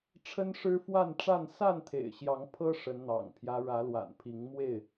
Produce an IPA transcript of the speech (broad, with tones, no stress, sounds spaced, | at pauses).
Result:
ʈ͡ʂʰ ə˦ n ʂ ɻ̩˦ f w a˥˨ n ʈ͡ʂ a˥˨ n s a˥˨ n t̪ʰ ḛ˨˩ ɪ̯ ɕ j ɑ˨˦ ŋ pʰ ɤ˦ ʂ ə˨˦ n n̪ ɑ̰˨˩ ŋ pʰ j ä˦ ɻ ä˨˦ l w a̰˨˩ n pʰ i˨˦ ŋ m w e˥˨ ɪ̯